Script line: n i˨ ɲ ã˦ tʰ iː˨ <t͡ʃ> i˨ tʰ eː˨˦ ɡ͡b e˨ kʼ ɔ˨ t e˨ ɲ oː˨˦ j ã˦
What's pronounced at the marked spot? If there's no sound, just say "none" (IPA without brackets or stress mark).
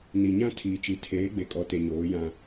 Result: t͡ʃ